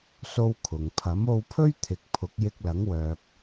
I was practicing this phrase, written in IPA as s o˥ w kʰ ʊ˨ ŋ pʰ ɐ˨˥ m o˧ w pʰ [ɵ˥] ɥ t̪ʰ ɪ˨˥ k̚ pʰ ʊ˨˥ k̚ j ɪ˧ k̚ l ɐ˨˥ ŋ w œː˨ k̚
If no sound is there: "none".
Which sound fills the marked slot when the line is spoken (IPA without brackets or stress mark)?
ɵ˥